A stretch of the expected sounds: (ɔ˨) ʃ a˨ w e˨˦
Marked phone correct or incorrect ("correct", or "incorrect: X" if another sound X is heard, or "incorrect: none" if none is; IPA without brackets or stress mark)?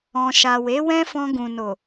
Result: incorrect: ɔ̃˨